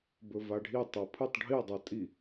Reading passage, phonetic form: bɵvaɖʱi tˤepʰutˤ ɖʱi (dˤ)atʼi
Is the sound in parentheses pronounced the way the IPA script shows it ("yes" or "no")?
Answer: yes